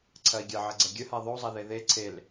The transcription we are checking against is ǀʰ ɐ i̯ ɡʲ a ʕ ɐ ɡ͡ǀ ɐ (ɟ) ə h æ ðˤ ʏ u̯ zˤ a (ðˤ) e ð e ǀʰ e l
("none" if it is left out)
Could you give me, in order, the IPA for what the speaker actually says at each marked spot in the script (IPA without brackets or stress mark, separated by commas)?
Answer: ɡʲ, ð